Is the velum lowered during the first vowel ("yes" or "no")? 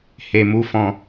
no